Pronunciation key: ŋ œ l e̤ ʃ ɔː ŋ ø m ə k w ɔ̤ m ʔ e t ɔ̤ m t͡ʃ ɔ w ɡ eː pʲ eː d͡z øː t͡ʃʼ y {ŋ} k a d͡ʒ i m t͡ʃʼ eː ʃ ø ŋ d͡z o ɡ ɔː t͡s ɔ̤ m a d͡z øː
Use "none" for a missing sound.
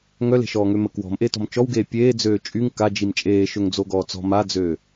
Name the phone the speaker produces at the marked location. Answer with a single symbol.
ŋ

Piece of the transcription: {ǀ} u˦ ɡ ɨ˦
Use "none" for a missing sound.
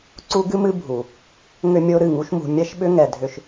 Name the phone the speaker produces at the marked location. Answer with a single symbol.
ǀ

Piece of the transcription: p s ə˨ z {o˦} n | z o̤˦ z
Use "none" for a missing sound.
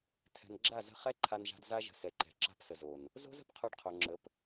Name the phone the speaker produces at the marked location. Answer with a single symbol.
o˨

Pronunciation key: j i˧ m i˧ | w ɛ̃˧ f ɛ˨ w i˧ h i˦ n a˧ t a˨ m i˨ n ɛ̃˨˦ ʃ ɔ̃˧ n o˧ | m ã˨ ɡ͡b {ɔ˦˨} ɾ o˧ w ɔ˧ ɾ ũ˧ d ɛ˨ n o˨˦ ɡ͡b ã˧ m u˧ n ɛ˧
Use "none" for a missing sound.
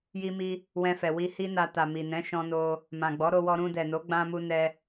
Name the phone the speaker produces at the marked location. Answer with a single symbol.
ɔ˨˦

